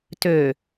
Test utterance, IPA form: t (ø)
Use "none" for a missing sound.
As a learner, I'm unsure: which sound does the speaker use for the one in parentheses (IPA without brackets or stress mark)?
ø